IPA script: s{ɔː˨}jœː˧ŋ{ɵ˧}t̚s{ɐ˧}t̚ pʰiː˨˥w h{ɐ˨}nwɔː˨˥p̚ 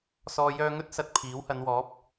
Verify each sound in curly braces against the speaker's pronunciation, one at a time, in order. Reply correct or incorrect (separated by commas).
correct, incorrect, incorrect, incorrect